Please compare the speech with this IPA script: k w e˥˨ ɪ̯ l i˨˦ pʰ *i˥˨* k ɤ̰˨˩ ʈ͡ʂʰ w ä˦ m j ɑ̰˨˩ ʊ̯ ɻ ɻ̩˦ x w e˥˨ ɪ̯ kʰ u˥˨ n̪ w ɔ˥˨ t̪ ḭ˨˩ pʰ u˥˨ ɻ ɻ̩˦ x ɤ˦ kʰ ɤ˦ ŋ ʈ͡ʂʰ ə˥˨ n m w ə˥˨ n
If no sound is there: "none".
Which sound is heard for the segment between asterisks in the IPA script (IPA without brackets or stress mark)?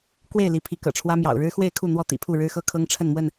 i˨˦